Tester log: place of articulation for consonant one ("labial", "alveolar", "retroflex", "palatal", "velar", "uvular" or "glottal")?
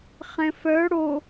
uvular